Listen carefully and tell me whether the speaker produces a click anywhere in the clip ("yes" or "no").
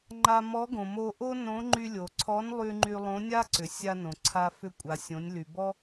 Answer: yes